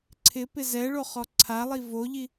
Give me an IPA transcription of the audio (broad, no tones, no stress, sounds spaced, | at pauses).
ǀʰ ɪ p ɪ z ɛ ɭ o χ ɔ ǀʰ a lˠ i v o ʎ i